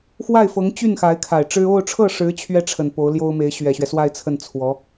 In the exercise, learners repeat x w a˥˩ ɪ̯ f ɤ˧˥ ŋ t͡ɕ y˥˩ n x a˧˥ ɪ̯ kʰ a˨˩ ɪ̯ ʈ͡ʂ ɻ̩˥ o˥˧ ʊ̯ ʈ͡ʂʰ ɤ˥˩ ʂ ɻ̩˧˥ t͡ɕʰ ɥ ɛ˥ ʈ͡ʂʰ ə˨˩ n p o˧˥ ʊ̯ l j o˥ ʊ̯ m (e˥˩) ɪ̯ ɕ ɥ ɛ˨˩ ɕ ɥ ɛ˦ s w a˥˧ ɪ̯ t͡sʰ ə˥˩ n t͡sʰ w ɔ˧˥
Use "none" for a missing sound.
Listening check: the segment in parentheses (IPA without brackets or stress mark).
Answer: e˧˥